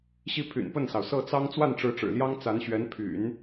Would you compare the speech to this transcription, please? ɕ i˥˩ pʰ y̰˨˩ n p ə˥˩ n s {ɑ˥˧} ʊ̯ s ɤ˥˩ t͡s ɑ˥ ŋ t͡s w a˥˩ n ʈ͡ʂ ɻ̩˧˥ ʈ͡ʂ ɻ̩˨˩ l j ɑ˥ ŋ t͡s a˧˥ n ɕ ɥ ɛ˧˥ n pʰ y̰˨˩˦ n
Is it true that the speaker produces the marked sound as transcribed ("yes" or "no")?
no